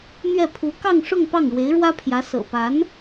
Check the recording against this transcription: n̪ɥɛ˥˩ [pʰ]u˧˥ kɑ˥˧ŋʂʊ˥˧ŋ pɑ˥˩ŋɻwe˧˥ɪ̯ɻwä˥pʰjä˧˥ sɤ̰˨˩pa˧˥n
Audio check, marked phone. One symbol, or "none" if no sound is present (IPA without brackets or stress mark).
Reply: pʰ